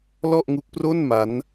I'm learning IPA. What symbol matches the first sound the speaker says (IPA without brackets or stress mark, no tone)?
l